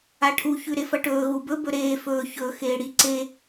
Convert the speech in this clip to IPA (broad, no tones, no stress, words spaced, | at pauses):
aʈʰu çʉɾefɐʈɵː ɣubɵ bɵɾeː fɵː çɵ xeːɽi ǀe